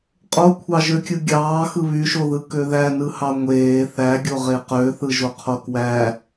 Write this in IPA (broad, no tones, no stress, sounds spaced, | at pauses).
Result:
qʼ o kʷʰ ɑ ʒ ø kʲ ɯ ɡʲ ɑː x ɯ β y ʃ o ð ɯ k ø ð æ n ɯ h ɑ ŋʷ eː θ æ ɡʲ o ʁ e q ø θ ɯ ʒ o qʰ o k w æ